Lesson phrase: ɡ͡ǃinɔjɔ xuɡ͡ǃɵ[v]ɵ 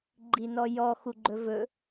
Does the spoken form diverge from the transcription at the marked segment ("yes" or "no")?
no